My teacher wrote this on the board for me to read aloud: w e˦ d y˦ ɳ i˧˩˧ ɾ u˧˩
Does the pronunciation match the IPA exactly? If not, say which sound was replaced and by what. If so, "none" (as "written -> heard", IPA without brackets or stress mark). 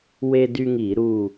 ɳ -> ŋ